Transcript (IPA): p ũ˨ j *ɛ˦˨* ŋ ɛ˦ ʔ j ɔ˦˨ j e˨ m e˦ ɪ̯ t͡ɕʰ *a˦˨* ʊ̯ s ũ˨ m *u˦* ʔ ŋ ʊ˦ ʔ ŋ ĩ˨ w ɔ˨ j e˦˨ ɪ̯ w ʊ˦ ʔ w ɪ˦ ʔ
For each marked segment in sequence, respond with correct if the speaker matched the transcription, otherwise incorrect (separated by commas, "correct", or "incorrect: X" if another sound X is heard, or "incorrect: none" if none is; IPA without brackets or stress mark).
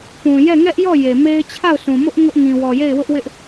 correct, correct, incorrect: ʊ˦